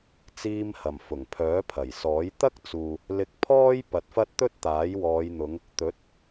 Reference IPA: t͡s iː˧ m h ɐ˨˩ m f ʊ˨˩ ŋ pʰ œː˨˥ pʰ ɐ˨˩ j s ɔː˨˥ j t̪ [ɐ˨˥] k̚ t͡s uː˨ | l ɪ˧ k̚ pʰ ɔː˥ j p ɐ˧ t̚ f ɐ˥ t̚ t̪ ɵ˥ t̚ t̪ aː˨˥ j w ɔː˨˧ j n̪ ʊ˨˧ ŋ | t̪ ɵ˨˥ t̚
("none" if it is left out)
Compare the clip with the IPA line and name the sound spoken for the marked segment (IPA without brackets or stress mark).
ɐ˥